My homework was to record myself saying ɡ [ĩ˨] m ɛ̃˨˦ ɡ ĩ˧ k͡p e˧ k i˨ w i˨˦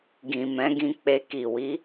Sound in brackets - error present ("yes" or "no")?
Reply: no